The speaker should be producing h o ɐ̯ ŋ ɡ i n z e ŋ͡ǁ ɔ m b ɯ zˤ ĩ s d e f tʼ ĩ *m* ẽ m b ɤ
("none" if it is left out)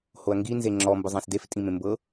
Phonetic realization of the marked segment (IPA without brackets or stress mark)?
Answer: m